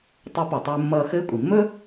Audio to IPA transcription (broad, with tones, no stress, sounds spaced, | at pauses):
tˤ ɵ˧˥ p ʌ˩ tˤ ɘː˧ mː ʌː˧ x ɘː˧˥ kʷʼ i˩ mː ɵ˥